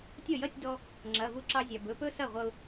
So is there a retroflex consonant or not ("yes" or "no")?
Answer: no